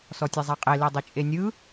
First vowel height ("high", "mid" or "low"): mid